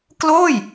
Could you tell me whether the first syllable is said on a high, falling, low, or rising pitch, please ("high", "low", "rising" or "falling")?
falling